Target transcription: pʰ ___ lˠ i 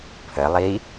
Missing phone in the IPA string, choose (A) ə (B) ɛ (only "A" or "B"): A